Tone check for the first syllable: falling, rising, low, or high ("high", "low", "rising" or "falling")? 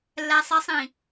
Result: low